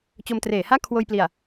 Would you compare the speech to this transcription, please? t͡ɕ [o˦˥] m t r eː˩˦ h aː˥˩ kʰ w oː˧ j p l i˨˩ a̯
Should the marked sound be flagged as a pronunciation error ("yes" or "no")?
yes